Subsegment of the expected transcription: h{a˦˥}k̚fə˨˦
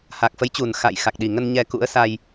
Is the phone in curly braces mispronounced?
yes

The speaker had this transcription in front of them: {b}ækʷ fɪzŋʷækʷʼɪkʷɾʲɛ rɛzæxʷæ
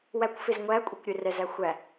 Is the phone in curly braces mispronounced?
yes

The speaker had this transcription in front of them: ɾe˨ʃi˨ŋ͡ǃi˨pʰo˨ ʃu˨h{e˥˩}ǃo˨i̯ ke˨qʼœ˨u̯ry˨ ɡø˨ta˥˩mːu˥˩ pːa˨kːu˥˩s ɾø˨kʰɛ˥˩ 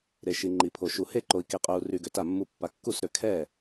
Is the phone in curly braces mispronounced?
no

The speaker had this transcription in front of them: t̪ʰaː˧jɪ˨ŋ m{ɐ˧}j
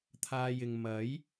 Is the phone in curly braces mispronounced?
yes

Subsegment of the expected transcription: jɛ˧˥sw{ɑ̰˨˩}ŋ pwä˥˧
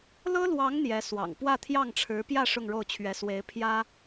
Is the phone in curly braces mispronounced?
no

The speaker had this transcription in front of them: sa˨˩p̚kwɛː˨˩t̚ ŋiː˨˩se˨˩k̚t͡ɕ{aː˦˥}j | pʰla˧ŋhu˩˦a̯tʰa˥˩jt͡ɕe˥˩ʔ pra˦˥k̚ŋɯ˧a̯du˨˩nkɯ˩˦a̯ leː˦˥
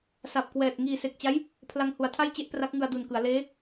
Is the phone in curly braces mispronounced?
yes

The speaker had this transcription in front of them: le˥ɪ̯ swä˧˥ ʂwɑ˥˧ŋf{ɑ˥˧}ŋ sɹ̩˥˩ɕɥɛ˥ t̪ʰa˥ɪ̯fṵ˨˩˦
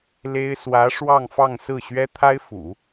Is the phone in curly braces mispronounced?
no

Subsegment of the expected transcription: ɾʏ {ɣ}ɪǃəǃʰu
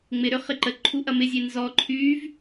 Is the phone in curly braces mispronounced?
yes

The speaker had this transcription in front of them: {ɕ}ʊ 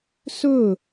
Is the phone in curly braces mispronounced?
yes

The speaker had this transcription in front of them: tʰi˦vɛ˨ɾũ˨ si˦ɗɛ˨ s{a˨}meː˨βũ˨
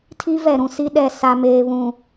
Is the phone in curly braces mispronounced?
no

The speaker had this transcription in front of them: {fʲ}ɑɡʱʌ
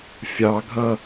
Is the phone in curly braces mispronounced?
no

